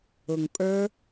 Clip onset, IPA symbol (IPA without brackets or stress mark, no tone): ʊ